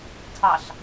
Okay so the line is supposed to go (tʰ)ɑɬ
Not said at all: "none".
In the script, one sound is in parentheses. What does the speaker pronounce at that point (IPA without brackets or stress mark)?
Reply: tʰ